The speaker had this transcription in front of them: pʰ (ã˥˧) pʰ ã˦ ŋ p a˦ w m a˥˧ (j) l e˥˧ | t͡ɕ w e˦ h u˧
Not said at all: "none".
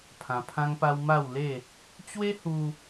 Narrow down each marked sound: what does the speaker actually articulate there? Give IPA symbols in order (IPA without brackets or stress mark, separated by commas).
ã˧, w